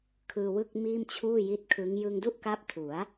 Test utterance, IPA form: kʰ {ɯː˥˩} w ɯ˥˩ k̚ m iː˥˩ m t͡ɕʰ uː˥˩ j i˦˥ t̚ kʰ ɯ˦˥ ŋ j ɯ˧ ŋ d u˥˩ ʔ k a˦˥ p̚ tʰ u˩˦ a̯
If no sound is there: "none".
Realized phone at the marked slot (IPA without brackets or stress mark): ɯː˧